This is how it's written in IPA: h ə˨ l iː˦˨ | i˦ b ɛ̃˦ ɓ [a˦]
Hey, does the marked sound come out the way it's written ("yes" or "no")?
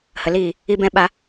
yes